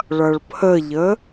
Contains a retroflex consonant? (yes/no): yes